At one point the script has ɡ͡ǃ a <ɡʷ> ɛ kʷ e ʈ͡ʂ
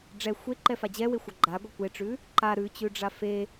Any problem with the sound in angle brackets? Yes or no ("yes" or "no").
no